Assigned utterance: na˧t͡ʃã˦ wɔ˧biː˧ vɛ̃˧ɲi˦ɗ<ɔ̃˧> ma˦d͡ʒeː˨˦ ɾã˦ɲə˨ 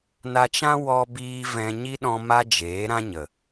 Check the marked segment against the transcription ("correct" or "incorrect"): correct